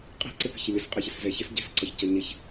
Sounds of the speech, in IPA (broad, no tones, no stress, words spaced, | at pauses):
qʼi̤ǀɪpə̤ç əlʲɒsqʼɛçəs zɛçəs ɟɛ̤sǀɒçcʌ ɲɪç